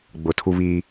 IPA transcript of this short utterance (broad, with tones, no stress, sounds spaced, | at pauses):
ɡ͡b ʊ˨ tʰ u˦ β iː˦